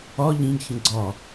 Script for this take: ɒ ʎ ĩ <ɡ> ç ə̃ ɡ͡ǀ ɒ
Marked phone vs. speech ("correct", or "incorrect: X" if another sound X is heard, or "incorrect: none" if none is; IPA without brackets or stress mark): correct